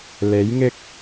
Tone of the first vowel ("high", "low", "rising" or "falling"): rising